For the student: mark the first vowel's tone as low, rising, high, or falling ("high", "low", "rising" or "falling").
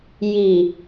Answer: low